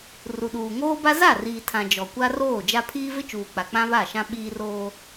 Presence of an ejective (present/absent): absent